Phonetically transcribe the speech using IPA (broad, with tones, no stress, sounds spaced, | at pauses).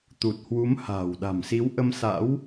t̪ u˨˩ t̚ h w u˨˦ m h a̤ː˨˩ w ɗ a̤˨˩ m s i˨˦ w ʔ ə˧ m s a̰˧˥ w